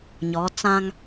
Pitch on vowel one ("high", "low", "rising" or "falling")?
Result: rising